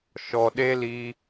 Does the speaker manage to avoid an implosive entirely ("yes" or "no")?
no